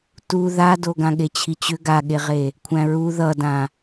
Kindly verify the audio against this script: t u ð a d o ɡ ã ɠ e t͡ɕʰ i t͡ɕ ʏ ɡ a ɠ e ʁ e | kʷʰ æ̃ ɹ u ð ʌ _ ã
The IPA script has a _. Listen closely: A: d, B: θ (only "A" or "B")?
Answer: A